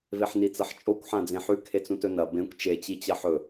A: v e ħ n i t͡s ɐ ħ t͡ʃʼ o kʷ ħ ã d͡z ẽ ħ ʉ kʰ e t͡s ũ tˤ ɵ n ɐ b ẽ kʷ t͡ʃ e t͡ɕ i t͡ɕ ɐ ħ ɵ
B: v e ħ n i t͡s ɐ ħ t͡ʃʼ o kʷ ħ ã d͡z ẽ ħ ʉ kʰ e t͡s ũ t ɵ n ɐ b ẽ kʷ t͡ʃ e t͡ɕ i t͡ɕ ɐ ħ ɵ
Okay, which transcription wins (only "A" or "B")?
B